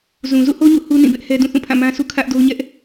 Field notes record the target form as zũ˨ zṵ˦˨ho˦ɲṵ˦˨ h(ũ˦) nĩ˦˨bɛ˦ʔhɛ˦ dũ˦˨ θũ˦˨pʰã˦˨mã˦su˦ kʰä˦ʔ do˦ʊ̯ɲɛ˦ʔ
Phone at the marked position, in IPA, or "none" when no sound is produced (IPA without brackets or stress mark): u˦